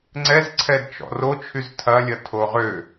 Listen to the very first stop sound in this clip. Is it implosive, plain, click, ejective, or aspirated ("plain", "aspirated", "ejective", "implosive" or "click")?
click